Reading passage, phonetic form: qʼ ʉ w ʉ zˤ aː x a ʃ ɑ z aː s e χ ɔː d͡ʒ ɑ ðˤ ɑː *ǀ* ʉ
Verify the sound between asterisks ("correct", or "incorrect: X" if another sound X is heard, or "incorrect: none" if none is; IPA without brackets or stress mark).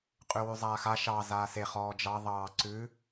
correct